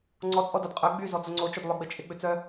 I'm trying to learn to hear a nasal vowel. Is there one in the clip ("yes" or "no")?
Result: no